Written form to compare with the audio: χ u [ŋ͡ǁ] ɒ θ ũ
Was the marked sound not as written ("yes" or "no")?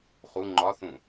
yes